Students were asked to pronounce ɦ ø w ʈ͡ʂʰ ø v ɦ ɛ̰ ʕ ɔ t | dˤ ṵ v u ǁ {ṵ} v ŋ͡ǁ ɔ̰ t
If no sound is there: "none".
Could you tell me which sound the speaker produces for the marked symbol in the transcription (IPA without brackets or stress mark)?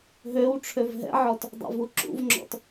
ṵ